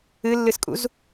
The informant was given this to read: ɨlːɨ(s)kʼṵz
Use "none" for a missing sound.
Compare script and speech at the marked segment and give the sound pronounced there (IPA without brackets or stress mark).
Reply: s